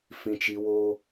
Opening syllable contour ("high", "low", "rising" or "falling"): high